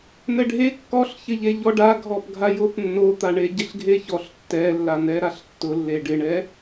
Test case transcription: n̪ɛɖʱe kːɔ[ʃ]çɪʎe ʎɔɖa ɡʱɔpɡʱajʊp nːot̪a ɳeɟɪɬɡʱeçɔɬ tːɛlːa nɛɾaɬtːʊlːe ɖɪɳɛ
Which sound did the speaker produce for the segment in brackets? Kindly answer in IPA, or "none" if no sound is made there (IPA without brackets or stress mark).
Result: ɬ